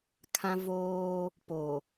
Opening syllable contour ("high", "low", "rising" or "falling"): high